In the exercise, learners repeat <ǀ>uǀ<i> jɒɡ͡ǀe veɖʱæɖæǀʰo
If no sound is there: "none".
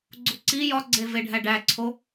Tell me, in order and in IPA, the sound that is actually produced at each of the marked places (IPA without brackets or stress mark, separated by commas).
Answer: ɡ͡ǀ, i